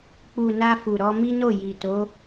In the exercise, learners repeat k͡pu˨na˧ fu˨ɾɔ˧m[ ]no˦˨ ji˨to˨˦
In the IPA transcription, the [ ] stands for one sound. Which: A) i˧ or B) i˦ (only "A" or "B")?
B